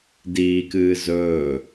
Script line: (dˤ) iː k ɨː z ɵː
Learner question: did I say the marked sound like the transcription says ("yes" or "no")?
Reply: no